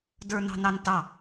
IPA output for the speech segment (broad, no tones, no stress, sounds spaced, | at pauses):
d ə˞ n ɑ̤ n ɑ n t ɑ